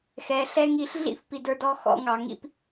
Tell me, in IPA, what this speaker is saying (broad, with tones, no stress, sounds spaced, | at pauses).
x ɛ˨˦ ɬ ɛ˦ ŋ i˧ ɬ ɮ ḭ˦ f p i˨ d ə˞˧ d ɔ˧ x ɔ̰˧ ŋ ɑ˨ ŋ ḭ˦ p